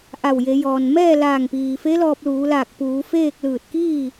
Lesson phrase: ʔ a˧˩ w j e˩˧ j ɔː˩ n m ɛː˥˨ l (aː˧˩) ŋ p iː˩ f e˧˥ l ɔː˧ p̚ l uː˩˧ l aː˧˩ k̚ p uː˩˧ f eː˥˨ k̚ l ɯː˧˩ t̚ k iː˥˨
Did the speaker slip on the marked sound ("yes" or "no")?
no